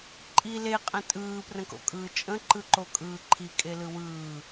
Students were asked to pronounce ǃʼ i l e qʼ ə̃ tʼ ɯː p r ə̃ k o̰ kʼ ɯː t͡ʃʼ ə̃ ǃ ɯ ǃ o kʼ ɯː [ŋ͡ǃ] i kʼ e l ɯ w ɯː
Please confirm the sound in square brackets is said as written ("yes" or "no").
no